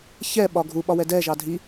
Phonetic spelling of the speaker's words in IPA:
çɛɓɒ ɡʱuɓɒ wɛdɛʒɑ dʱi

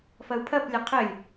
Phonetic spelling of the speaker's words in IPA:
fɐu̯pʰɐplʲɐ qʰɘlʲ

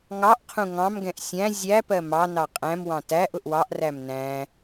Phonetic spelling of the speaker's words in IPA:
ŋɑʔqʰũ ŋɑ̃mɡɛ̃ʔ sʲæ̃ zʲæpɜ mɑ nɑqʼæ̃mwɑ̃ tæʔ ʊʔwɑʔræm næ̃

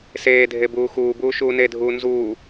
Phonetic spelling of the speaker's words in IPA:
seːdʱe buːxuːbuː ʃuːnedʱuː nzuː

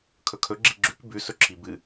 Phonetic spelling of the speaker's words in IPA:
kʰɵkʰɵ ɡ͡ǁiɡ͡ǁʉk bʉ sɵǁʰibɨ

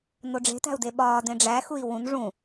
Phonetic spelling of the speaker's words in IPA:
noɖ͡ʐe̤tæ̤u̯de ɓɒːdẽ ɖ͡ʐæxui̯ wũn ʐũ

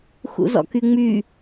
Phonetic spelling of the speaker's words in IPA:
xṵzɔ̰kyŋ͡my

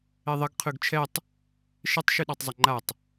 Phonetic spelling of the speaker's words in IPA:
eðˤɘɡ qʰʉɡt͡ʃʰɛtˤ | ʃɘtˤ ʃʉɗɑtˤzˤɘŋ͡ǃatˤ

